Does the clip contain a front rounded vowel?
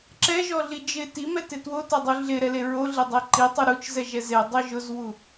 no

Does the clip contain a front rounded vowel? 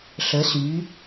yes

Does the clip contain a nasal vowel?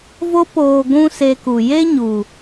yes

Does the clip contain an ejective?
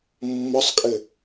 yes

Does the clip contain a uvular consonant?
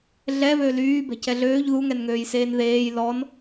no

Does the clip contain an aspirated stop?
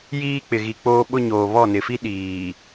no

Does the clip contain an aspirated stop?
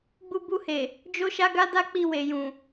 no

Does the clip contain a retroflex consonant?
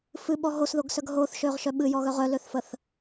no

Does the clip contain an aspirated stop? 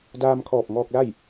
yes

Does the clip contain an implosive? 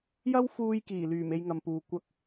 no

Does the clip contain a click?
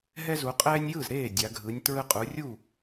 no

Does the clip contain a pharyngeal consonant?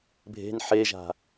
yes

